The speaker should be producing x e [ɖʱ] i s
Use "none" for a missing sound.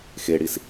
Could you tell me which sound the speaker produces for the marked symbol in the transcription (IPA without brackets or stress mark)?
ɽ